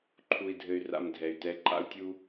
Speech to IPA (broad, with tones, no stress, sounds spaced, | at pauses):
ǃʰ u˧ i̯ dʱ ɘ˧ y̯ r a̰˧ m dʱ ɛ˨ y̯ t ɛ˨ ǃʼ a̰˧ u̯ tʲ u˧